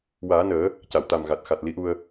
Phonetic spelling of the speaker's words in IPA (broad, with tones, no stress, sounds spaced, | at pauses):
w aː˨˩˦ n əː˨˩˦ | c a˨˩˨ w t̪ a˨˩ m ɣ a˨˩ t̚ x a˨˩ t̚ l i˧˥ ʔ u˧ ə̯